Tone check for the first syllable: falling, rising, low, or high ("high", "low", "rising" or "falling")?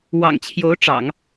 low